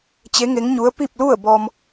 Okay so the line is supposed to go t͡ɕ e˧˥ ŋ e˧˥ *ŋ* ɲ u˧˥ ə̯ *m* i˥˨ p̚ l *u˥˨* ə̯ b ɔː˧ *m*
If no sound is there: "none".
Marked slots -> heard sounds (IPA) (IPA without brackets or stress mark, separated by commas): ŋ, p, u˥˨, m